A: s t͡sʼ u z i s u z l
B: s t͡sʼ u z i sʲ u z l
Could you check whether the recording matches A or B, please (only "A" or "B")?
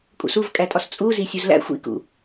B